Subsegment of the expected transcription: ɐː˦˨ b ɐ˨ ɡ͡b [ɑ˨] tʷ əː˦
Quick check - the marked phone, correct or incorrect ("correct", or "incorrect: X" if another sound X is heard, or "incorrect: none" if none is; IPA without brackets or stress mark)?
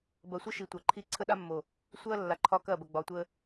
incorrect: ɒ˨